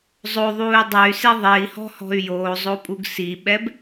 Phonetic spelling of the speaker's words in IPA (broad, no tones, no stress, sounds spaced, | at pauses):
zˤ o ðˤ uː y̯ dˤ ɛ y̯ s e ðˤ e i̯ h ɔ̤ h ɔ̤ y̯ j oː zˤ o pʼ u ɡ s i ɓ ɛ b